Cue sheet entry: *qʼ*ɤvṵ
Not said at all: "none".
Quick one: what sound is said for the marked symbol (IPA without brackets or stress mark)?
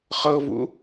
χ